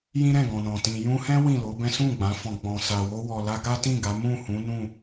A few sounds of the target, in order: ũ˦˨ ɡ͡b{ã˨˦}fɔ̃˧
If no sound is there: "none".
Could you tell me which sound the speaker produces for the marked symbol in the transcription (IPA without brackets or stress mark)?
ã˨˦